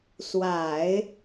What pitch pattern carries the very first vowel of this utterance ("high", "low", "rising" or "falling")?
low